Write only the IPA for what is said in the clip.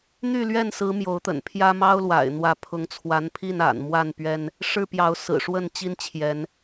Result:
n̪ y˥˨ l ɥ ɛ˥˨ n s ɹ̩˨˦ m j o˨˦ ʊ̯ t̪ ə̰˨˩ n pʰ j ä˦ m ɑ˦ ʊ̯ l w a̰˨˩ ɪ̯ n̪ w ä˨˦ pʰ ʊ˨˦ ŋ t͡sʰ w a˨˦ n pʰ i˥˨ n a̰˨˩ n m w a˥˨ n p ɥ ɛ˦ n | ʂ ɻ̩˦ p j ɑ˨˦ ʊ̯ s ɹ̩˨˩ ʂ w ə˥˨ n t͡ɕ i˦ n t͡ɕʰ j ɛ˨˦ n

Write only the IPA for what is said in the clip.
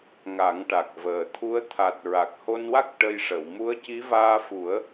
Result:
ŋ a˨˩˦ ŋ ʈ a˨˩ k̚ v əː˨˩ t̪ʰ u˧˥ ə̯ t̪ʰ a˨˩ t̚ ɹ a˨˩ k̚ h o˧ n w a˦˥ k̚ ʈ ə˧ j ʂ ə˨˩˨ w m u˧˥ ə̯ c i˧˥ v aː˧ f u˨˩˦ ə̯

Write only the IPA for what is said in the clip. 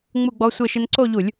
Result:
ŋ͡m u˥˧ ɡ͡b ɔ˦˥ sʷ e˥˧ ʃ ɪ˦˥ n ǀ o˥˧ ʎ u˧˩˧ lʲ

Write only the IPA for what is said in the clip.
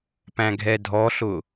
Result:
p æ̃ ɡʱ ɛ dʱ ɔ ɬ ʊ

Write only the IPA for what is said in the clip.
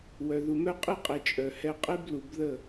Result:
w œ˨ ð u˨ m œ˦ qʼ i˦ qʼ e˨ t͡ʃʼ œ˨ h ɛ˦ qʼ e˦ b l u˨ b ð ə˦˨

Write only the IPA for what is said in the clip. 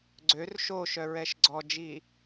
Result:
ɡ͡ǀ ø r ʃ o ʃ œ ɹ ɛ ʃ ɡ͡ǀ ɔ d͡ʒ i

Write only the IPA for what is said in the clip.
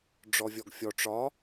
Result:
ɖ͡ʐ ɔ vʲ ɔ ɡ fʲ ɔ ʈ͡ʂ ɒ

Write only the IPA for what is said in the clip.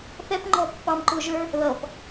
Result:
θ ɛ p ŋ͡ǃ ɔ pː ɑ m ǃ ʊː ʒ ə˞ | ð ʌ p

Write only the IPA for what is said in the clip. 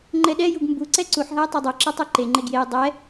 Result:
ŋ͡ǃ ɛ ɗ ɛ j u ɡ m b u ǀ ɛ ǀ u ħ ɦ a j tˤ a dˤ o ǁ ɛ tˤ u ǃ e ŋ͡ǃ e ɡ j e j dˤ ɛ

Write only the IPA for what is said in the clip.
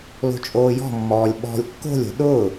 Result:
l o̤ t͡ʃʼ oː j ɔ̤ mː ɔː lʲ ɓ ɔ̤ lʲ kː o̤ lʲ o̤ ɗ ʊː

